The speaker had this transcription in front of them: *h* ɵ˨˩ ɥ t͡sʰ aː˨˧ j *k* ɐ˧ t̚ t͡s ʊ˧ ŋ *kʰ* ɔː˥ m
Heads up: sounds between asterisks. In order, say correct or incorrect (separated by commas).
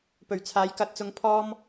incorrect, correct, incorrect